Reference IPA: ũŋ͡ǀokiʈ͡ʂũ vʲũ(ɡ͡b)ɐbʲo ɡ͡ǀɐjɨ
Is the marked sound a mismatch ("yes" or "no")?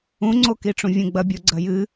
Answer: no